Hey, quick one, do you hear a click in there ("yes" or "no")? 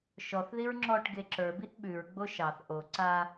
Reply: yes